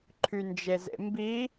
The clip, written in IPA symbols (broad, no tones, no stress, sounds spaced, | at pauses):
ǃʰ y n d͡ʒ e z ḛ m b i